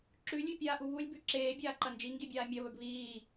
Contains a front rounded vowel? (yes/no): no